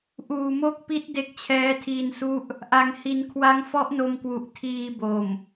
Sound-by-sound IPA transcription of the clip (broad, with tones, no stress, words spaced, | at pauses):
ʔuː˨˩mo˦˥k̚pi˦˥t̚ de˦˥k̚t͡ɕʰɛː˦˥tʰiː˧nsu˥˩ʔ | ʔa˩˦ŋhi˩˦nkʰwa˦˥ŋ fɔ˦˥ʔno˧mkwu˨˩ʔ tʰiː˧bo˨˩m